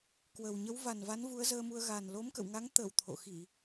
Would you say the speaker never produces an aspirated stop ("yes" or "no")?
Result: no